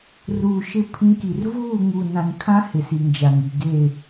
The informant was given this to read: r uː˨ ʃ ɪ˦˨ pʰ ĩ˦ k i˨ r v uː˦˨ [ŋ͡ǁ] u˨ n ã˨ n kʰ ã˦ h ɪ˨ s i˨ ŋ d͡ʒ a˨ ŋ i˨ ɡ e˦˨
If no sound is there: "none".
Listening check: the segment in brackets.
ŋ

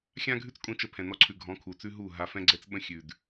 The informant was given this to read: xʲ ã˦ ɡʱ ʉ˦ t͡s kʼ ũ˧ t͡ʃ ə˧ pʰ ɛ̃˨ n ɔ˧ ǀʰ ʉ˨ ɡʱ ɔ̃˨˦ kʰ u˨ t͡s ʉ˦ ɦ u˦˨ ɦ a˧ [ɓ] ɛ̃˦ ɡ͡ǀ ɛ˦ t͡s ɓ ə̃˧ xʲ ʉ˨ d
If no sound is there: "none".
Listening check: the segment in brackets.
f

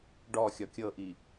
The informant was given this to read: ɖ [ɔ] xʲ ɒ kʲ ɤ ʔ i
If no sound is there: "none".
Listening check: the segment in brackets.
ɔ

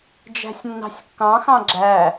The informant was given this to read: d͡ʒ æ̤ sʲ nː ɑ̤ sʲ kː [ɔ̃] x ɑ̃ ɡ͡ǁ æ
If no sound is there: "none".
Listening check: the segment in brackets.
ɑ̃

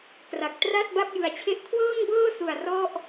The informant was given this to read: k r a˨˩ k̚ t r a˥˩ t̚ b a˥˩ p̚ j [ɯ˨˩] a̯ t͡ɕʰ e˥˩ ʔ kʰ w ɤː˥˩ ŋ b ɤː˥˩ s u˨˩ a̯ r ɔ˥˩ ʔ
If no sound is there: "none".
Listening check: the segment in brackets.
ɯ˨˩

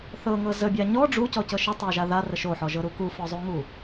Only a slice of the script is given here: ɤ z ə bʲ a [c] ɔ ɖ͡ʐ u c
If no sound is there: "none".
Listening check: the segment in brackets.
ɲ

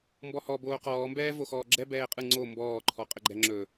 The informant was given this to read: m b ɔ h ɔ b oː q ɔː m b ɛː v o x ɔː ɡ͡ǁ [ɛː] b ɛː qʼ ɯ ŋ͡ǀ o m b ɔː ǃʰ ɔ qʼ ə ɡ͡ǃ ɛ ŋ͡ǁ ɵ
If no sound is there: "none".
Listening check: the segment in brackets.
ɛ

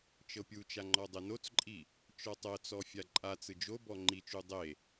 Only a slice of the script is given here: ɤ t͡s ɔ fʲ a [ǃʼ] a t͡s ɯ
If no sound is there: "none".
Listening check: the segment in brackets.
ǃʼ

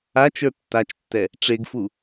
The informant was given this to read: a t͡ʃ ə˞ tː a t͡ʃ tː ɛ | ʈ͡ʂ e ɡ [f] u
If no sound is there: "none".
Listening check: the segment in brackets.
f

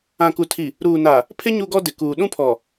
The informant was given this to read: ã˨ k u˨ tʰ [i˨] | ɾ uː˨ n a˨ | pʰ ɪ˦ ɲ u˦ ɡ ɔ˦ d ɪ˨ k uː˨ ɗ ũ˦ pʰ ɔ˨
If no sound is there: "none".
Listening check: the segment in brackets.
i˨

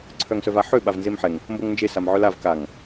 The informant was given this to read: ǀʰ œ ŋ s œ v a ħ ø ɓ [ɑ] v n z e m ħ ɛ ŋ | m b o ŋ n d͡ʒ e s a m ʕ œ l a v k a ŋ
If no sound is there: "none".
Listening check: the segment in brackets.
a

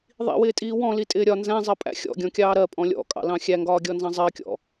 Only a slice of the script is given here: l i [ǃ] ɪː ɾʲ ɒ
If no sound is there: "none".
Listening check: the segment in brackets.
tʼ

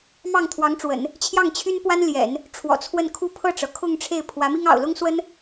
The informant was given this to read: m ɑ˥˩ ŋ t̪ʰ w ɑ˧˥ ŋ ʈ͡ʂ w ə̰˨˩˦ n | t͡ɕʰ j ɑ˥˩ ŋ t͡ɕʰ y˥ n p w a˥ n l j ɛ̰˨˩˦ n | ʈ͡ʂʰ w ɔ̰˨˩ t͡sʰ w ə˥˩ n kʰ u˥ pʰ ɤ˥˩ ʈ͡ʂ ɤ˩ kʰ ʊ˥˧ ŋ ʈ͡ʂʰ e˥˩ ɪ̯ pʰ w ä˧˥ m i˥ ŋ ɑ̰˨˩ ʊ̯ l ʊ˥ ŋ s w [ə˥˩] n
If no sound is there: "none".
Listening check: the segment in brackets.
ə˥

